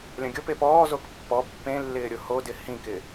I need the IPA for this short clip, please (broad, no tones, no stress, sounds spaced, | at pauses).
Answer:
lʲ ɐ̃ ɡʲ ʊ p e p ɔː z o k pː ɔ pː ẽ lː ɪː ɾʲ ʊ h o d ɪ h ĩ k ɪ